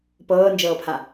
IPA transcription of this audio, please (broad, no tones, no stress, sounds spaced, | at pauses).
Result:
p ɤː n d͡ʒ ɤː pʰ a